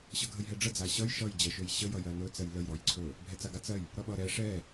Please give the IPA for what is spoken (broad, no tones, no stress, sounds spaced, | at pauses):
ɕ ʌ ɡʱ ə j ɦ ɛ ɖ͡ʐ ə d͡z a ɕ ʌ j ʃ ʌ j d͡ʑ ɜ ʃ ɵ j ɕ ə j ʌ j ɜ n ɵ t͡s ɜ j l ə j ɾ ɔ j ǀʰ ɵ | bʱ ɛ t͡s a ɡ a t͡s ɜ j | ɾ ʌ ɓ ʌ ɾ ɛ ʂ ɛ